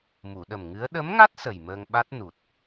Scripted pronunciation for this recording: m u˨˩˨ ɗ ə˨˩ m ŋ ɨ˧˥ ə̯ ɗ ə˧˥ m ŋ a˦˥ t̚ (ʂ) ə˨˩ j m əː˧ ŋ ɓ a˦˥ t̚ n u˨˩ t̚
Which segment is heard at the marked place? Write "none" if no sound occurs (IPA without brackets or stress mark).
s